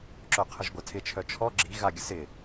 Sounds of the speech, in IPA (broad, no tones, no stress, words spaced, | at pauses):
ǁœqʰəʒɡʷatʰɪ t͡ʃʰœt͡ʃʰɔ ɡ͡ǁi ɣaɡʲəsɪ